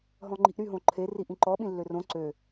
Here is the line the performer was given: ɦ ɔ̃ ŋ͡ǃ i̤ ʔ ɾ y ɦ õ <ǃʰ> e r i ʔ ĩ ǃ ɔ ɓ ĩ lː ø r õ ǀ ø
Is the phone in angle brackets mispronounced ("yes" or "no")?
no